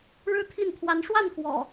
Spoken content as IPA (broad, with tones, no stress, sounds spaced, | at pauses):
ɻ ɻ̩˥˨ t̪ʰ i˥˨ n t̪ʰ w a˨˦ n ʂ w a˥˨ n x w ɔ̰˨˩